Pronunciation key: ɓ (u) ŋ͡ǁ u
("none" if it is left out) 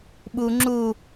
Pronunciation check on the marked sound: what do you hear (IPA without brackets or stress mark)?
u